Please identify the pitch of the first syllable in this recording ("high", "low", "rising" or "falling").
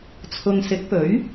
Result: low